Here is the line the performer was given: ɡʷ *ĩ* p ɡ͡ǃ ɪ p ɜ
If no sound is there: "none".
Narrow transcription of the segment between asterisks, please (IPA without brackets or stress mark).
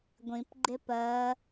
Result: ĩ